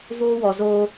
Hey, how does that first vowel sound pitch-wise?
high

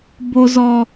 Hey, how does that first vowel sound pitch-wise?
low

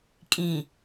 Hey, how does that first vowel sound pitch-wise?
low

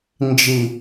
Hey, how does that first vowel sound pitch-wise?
low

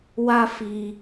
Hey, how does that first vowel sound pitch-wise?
high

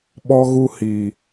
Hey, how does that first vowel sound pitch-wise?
high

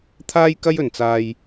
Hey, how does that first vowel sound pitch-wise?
high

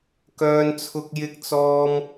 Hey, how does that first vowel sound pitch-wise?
high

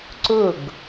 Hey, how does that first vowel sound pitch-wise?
falling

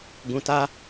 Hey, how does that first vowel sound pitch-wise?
low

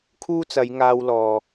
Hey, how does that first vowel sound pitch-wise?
high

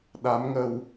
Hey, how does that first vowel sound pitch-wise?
rising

